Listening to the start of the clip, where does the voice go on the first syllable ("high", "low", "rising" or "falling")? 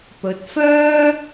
rising